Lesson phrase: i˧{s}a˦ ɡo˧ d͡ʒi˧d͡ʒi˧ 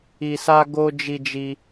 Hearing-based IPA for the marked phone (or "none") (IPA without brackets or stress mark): s